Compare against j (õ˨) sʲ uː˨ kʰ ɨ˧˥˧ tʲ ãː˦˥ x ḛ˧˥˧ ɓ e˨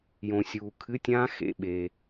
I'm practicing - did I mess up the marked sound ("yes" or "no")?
no